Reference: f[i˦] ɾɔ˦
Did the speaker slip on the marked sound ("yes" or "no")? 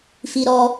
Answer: no